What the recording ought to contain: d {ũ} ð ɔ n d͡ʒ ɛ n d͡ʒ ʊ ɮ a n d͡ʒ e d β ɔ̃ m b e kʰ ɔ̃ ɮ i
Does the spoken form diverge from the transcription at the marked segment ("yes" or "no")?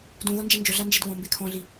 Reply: no